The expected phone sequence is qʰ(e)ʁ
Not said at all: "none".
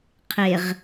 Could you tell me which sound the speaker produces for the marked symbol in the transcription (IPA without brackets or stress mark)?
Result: e